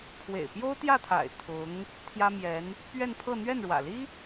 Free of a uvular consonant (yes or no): yes